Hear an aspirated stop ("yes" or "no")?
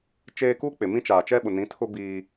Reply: yes